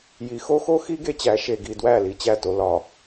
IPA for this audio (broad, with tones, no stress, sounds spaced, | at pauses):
j i˨ x o˦ x o˦ x i˦ ɡ e˦ t͡ɕ æ˨˦ ʃ e˨ ɡ i˨ d w æ˦˨ l i˦ t͡ɕ æ˦˨ t o˦ l ɒ˨